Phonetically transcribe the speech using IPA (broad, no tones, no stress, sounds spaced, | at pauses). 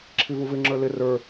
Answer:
ǁʰ i v u v ɪ ŋ͡ǁ ə˞ l ɪ r ə˞